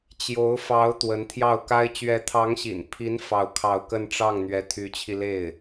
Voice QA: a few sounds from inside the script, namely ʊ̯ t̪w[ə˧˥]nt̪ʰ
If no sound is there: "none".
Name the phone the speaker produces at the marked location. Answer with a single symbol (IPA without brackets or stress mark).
ə˧˥